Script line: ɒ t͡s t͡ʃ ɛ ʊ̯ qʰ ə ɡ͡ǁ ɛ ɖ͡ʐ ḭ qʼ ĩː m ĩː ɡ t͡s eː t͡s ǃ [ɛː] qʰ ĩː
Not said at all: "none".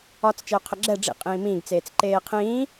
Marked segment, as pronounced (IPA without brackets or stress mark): eː